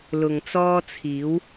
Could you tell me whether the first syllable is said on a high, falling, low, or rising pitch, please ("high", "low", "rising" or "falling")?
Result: low